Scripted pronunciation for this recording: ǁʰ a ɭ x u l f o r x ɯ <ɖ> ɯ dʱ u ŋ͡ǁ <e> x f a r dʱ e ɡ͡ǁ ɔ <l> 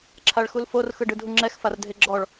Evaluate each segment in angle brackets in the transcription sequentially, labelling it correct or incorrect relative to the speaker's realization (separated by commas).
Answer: correct, incorrect, incorrect